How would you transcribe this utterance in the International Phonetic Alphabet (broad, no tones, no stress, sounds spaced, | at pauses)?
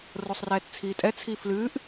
r o sˤ r ɛː t t͡sʰ iː tʼ ɛ t͡sʰ iː f l ɨː ʔ